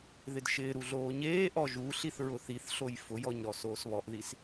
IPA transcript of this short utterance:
ðɪdʃɪːɾu ɮoːɲeːʔɔ ʒuɬiθ ɹʊθiθɬoj fʊjɔɲ ɾɔsoːsβɔʔðis

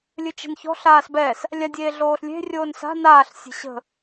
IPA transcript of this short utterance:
lʲɨt͡ʃe̤nçɔ̤ ɬaːsbɛs | lʲadʲeːɮoːɬlʲe̤ rʲoːnsa̤ naːɬ sʲe̤ɕə̤

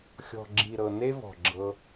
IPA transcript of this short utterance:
xʲɔ̤˨ɡ͡ǁi˨ɾɤ˨ ne˦vɔ̤˨ɡ͡ǁɤ˧

